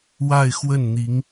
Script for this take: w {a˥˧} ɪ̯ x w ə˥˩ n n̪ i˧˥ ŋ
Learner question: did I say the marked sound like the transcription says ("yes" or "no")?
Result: yes